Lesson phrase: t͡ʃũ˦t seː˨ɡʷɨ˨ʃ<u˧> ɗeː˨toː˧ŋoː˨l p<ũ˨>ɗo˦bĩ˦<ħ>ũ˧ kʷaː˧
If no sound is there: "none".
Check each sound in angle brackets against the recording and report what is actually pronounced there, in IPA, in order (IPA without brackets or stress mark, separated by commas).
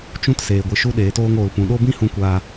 u˧, ũ˨, h